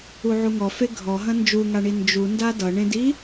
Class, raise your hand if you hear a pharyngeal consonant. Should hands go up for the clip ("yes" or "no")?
yes